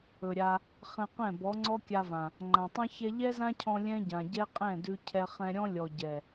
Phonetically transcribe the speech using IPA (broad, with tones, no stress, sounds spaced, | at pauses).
ɵ˨ ɾʲ a˧ | χ ɛ̃˧ q ɛ̃˦˨ b ɔ˨˦ ŋ͡ǀ ɔ˦ kʲ a˧ v ã˨ | ŋ͡ǃ ã˨ tˤ ɛ̃˦ ç ɛ˦ ʎ ɛ˦ z ã˦ cʰ ɔ̃˧ lʲ ɛ̃˦ ɟ ã˨ ɟ ɛ˦ qʼ ɛ̃˦˨ d ʉ˧ cʰ ɛ˧ χ ɛ̃˧ ɾʲ ɔ̃˦ lʲ ɔ˨ ɟ ɛ˨